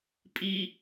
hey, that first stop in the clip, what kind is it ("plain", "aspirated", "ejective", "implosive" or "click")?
ejective